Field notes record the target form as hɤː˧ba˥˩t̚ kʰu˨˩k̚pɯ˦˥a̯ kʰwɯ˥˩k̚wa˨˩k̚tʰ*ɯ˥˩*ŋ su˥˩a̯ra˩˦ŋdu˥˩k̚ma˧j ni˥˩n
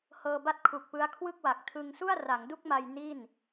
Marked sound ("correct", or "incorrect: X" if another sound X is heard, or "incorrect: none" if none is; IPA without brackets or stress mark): incorrect: ɯ˧